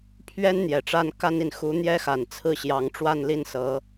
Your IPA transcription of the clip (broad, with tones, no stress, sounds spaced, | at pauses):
pʰ ɥ ɛ˥ n n̪ j ɛ˨˩ ʈ͡ʂ a˥ n k a˥ n i˨ n x u˧˥ n̪ j ɛ˥ x a˨˩ n t͡sʰ ɹ̩˥˩ ɕ j ɑ˧˥ ŋ ʈ͡ʂ w a˥˧ n l i˥˩ n s ɤ˧˥